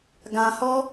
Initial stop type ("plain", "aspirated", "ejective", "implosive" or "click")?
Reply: plain